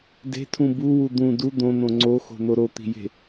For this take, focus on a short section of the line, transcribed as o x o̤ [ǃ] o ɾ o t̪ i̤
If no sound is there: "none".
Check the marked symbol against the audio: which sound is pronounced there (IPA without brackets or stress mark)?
n̪